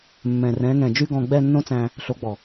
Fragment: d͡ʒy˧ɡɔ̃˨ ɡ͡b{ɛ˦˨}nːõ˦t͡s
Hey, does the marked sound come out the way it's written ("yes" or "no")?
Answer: yes